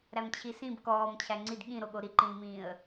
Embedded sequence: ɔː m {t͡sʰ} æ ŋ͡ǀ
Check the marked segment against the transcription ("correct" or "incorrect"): incorrect